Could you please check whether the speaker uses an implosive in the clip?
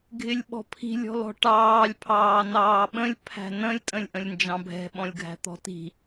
yes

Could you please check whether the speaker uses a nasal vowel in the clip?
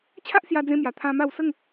yes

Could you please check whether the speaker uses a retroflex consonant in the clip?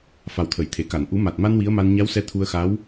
no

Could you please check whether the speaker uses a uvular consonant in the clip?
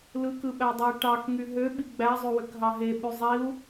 no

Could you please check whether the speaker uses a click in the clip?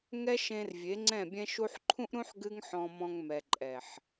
yes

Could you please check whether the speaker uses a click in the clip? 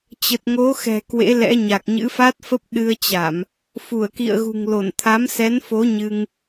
no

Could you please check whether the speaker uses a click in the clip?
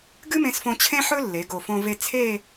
no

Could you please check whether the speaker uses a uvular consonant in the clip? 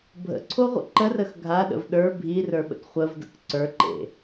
yes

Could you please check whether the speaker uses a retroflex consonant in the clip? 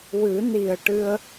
yes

